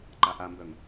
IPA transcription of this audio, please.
ǃ a ʔ a m b œ ŋ

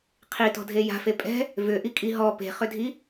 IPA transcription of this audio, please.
qʰ i t ɔ̤ dʱ e j a̤ f e pʼ ɛ̤ | v ʏ ʔ i kʼ i ɦ ɔ p e̤ χ ʏ dʱ i

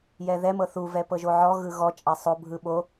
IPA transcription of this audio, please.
j ɛ ð ɛ m ɤ θ u v ɛ p ɤ ʒ o ʕ ɔ ɣ ɯ ɣ ɔ t͡ʃʼ a sˤ o bʱ ɯ ɓ o

